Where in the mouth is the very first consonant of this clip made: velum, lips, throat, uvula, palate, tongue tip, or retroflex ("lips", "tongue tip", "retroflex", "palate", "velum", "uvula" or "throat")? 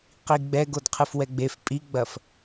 uvula